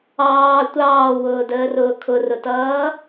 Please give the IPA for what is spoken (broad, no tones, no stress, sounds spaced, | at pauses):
ɑː tʷ ɑː w ʊː d əː r ʊː kʰ ʊ r ʊ t ʌː